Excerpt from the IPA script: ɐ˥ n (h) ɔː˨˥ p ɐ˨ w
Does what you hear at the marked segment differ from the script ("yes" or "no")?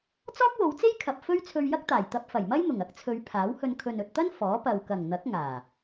yes